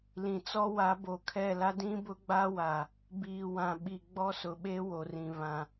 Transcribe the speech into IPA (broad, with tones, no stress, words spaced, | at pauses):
lĩ˨t͡sɔ˦wa˨˦ bo˨kʰɛ˦˨la˦ dĩ˦bʊ˦ɡ͡ba˦wa˨ | biː˨wã˨ɓi˨ ɡ͡bɔ˦sʊ˨ɓe˦ wo˨rĩ˨ βã˨